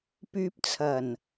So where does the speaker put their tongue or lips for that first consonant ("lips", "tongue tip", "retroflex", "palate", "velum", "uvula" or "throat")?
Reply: lips